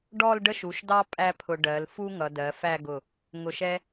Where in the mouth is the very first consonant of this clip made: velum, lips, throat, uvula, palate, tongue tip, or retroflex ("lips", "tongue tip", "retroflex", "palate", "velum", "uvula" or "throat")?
retroflex